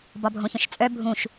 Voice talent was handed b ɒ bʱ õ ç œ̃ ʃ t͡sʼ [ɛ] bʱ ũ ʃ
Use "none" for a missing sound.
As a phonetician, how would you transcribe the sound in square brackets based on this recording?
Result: œ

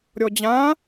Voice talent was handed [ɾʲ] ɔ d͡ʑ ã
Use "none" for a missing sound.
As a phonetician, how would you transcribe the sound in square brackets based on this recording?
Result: ɾʲ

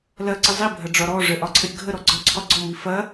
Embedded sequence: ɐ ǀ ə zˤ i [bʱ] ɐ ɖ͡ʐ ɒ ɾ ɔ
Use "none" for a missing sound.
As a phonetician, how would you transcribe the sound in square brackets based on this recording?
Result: bʱ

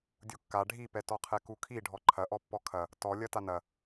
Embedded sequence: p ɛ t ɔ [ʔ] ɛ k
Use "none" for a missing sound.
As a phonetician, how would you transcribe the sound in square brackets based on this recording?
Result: qʰ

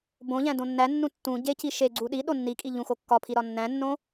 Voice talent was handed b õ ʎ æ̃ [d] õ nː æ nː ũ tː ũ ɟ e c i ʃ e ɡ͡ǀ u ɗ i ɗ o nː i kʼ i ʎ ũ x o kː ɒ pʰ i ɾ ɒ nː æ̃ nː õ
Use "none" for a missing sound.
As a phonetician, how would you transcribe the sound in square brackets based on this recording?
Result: d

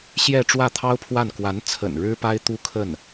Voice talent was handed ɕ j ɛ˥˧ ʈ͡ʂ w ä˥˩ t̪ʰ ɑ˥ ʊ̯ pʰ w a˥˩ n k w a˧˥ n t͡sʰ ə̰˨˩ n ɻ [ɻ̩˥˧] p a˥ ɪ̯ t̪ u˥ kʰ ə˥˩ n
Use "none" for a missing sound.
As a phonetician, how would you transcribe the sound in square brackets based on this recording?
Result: ɻ̩˥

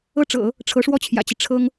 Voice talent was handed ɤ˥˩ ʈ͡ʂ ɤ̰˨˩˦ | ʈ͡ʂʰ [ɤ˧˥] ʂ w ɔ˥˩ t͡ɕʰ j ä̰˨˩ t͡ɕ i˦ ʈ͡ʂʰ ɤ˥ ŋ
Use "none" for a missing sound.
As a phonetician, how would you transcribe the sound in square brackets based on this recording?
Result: ɤ˧˥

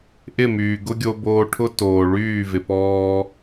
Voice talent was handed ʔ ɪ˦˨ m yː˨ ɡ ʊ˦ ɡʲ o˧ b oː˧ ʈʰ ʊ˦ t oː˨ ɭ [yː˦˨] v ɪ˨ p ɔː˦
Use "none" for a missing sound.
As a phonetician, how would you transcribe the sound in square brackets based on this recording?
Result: yː˦˨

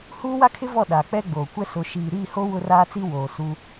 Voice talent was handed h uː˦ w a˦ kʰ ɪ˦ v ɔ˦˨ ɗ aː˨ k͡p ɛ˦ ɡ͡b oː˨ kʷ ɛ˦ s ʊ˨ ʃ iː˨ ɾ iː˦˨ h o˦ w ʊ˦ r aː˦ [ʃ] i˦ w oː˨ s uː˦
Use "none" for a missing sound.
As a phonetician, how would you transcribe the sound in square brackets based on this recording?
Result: t͡s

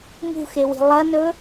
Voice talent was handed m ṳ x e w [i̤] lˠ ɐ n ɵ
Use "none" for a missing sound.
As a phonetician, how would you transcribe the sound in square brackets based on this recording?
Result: i̤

